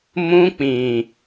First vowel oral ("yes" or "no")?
no